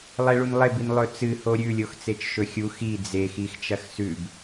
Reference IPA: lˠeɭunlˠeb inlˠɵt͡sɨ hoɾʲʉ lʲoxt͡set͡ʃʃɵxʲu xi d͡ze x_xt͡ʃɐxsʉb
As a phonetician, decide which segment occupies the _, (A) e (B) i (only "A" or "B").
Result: B